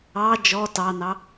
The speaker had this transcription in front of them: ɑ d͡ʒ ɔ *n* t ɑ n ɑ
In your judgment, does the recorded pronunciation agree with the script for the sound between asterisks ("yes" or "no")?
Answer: no